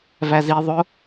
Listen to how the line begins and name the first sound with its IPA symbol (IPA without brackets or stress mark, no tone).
v